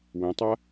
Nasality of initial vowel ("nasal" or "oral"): nasal